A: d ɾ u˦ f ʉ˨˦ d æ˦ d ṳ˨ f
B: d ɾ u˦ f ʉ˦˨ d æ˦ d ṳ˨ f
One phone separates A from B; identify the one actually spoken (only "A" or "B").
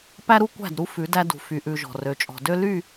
A